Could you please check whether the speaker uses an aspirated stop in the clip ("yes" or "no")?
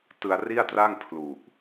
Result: yes